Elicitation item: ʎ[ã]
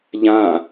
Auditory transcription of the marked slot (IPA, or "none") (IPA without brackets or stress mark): ã